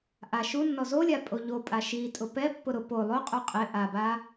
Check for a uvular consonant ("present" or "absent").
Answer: present